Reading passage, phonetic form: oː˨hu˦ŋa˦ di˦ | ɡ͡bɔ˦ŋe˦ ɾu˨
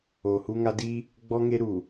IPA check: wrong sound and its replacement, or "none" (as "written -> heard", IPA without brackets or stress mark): none